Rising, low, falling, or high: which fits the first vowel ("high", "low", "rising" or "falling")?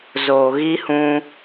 low